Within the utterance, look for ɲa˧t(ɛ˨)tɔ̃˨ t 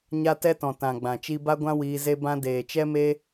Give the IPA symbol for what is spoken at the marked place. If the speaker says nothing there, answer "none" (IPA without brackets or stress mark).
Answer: ɛ˧